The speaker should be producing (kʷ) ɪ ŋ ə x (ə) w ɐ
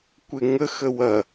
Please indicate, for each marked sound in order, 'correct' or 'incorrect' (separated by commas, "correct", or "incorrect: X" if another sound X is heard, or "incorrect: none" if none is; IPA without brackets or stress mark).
correct, correct